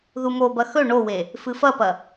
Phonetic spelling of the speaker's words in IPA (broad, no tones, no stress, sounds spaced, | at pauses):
ð u m o b ɐ x ɵ ɳ o w e | f ɨ f ɐ p ɐ